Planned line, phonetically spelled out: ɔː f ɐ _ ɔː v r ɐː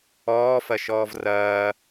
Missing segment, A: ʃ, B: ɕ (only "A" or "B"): A